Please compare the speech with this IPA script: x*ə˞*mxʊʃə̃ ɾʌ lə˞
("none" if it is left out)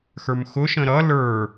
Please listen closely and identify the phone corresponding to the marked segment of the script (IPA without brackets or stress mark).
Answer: ə˞